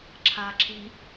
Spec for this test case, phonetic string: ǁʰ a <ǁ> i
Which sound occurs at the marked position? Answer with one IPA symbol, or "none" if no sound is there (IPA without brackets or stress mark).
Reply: ǁ